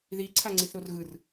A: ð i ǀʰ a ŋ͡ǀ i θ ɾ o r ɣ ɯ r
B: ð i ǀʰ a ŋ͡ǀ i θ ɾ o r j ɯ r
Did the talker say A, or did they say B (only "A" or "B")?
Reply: A